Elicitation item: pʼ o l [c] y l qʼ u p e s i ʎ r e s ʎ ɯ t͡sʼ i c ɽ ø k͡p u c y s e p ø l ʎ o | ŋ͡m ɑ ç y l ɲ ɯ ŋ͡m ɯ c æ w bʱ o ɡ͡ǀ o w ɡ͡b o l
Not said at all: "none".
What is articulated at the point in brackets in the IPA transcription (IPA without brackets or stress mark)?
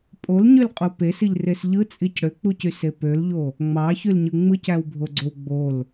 ɲ